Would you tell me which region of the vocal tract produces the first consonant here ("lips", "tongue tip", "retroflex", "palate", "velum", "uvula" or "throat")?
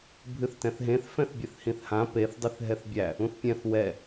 lips